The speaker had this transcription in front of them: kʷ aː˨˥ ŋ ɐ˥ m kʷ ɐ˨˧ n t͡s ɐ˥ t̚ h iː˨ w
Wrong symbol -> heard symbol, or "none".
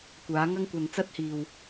m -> ŋ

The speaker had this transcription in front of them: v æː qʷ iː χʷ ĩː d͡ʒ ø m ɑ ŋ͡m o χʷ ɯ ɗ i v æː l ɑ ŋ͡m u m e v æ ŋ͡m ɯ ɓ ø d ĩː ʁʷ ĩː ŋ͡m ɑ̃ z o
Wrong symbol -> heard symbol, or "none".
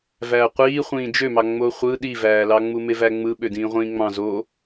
none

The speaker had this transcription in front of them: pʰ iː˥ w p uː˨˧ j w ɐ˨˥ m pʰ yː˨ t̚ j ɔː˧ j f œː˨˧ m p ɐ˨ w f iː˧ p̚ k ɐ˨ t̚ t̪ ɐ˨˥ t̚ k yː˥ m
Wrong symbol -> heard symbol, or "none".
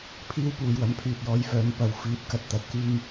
none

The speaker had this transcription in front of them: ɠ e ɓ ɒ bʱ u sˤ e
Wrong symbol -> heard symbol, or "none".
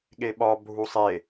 none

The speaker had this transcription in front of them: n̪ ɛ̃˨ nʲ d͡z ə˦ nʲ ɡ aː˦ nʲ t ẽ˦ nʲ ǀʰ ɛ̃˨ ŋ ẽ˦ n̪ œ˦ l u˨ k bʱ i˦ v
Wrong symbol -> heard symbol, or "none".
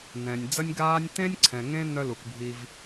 none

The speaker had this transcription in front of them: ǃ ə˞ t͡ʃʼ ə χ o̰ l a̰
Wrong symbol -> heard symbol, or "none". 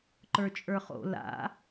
ə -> ə˞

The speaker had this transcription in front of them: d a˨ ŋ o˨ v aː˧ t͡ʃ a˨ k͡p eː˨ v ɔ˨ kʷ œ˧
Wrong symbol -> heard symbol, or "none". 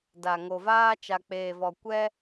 œ˧ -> ɛ˧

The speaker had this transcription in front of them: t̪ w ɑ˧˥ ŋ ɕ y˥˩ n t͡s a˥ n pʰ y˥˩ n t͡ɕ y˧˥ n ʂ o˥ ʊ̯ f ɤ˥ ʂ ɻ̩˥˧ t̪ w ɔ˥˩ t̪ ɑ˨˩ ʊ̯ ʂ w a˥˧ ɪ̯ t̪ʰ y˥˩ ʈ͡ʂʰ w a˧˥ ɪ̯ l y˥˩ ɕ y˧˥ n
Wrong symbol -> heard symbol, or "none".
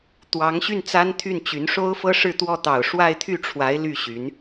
pʰ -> t̪ʰ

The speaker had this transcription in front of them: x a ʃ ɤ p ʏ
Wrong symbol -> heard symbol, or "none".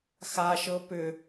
none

